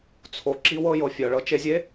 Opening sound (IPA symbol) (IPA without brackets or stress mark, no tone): t͡sʰ